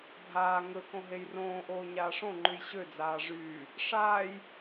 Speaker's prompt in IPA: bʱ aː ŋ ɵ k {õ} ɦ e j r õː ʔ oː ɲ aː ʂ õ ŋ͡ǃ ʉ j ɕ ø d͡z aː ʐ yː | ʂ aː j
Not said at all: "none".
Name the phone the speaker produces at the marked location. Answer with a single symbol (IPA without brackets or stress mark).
õ